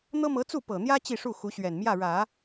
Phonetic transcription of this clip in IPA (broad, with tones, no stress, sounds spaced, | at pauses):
n̪ ɤ˥ m ɤ˧˥ t͡s u˥˩ p ɤ˨˩ n̪ j ä˥ t͡ɕ i˥˧ ʂ u˥˩ x u˧˥ ɕ ɥ ɛ˨˩ n m j ä˥˩ ɻ ä˨˩˦